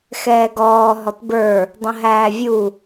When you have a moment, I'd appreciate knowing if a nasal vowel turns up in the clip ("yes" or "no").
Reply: yes